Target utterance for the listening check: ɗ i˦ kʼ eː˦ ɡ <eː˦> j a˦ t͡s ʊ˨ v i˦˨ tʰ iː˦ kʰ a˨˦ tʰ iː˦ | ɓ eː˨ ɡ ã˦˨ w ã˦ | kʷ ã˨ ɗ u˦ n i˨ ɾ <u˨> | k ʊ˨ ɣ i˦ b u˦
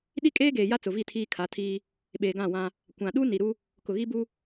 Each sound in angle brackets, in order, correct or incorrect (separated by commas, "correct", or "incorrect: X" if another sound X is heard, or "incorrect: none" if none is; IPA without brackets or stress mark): incorrect: eː˨, incorrect: u˦